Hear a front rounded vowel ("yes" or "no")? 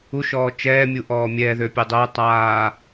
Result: yes